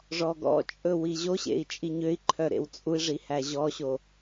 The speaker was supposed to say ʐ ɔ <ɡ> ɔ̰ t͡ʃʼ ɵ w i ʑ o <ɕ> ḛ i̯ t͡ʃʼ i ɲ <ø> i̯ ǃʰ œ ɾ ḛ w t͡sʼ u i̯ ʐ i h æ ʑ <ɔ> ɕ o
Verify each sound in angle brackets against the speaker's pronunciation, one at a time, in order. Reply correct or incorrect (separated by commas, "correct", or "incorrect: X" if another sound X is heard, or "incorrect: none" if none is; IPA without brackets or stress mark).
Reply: correct, correct, correct, correct